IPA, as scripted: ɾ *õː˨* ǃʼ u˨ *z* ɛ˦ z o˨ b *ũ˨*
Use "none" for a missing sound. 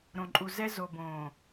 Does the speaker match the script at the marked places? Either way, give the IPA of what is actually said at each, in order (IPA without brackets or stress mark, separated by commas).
õ˨, z, õ˨